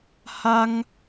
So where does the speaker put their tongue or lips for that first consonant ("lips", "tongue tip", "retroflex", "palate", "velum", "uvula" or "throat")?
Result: throat